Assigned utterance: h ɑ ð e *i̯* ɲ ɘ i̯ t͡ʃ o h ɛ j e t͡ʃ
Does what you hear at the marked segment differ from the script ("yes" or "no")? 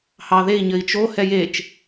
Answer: no